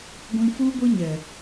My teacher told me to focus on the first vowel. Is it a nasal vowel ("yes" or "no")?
yes